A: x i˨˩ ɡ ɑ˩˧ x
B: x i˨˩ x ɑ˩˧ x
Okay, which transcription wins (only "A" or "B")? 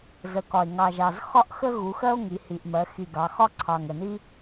A